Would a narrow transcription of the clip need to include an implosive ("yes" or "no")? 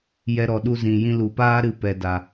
yes